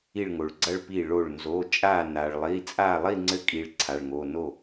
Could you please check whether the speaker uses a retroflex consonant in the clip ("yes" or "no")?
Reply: yes